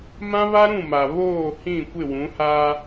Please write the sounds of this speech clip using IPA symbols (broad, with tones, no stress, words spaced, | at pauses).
mã˦βa˦ɾũ˦˨ma˨ βoː˦˨hĩ˦˨ kʷɪ˦˨wũ˨˦haː˦